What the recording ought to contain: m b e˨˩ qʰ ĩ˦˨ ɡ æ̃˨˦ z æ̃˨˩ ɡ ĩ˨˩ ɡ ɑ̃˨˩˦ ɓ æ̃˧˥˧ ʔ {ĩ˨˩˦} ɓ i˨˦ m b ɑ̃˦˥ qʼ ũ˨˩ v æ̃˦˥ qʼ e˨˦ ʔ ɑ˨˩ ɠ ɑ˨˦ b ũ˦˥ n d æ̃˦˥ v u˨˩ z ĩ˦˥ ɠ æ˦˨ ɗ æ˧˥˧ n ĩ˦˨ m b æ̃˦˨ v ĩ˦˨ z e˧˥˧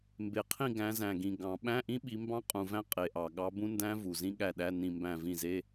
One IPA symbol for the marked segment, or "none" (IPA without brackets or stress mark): ĩ˦˥